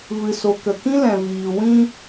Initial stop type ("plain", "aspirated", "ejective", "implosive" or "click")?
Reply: plain